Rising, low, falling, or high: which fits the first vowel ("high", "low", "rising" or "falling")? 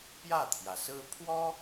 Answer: falling